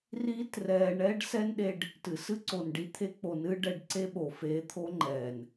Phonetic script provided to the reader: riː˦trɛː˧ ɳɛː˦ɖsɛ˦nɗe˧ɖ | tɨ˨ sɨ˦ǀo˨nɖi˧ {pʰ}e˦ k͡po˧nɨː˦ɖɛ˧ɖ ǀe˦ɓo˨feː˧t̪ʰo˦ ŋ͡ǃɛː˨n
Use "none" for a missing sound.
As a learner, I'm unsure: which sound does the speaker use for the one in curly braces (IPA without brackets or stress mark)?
t̪ʰ